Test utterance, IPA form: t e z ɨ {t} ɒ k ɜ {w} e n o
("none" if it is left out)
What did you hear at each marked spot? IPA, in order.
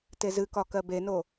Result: k, b

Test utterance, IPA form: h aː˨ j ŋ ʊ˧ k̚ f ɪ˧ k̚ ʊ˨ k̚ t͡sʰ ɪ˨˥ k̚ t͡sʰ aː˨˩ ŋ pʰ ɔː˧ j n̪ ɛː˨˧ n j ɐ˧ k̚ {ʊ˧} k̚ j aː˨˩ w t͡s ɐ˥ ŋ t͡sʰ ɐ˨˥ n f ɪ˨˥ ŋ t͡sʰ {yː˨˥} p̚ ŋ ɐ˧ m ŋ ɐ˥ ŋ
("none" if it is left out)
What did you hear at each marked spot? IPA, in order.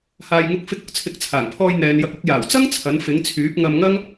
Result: ʊ˧, yː˨˥

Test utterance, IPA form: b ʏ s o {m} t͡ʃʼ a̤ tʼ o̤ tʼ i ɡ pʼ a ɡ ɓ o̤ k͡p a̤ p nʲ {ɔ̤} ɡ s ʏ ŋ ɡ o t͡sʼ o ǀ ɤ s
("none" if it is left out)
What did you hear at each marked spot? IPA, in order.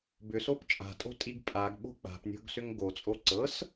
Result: p, o̤

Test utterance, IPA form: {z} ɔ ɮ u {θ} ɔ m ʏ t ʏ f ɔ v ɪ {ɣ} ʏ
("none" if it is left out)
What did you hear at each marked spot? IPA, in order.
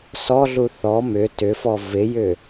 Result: s, θ, j

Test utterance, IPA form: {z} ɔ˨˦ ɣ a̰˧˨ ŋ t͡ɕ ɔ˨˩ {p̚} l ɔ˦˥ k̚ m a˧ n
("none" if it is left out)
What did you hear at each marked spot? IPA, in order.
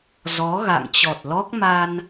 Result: z, t̚

